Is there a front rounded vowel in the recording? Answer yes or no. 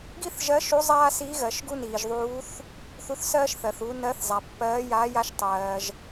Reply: no